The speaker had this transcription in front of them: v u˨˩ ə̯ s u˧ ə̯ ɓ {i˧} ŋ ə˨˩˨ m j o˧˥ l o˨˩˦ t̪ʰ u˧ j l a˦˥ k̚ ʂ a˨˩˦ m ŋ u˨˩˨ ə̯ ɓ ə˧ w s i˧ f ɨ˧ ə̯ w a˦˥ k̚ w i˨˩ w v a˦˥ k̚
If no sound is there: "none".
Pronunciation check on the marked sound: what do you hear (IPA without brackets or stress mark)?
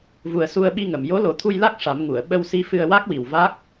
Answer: i˧